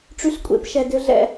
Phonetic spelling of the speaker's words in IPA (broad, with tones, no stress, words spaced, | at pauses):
ʈ͡ʂy˧ɬkʷʼḛ˧pʃɛ˨dʏ˧ ɮɛ̰˦